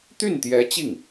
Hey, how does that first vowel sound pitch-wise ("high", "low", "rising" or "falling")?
falling